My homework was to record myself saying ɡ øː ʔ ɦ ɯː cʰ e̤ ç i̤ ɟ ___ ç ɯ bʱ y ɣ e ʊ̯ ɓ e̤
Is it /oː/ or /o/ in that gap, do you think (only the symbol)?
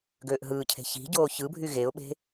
oː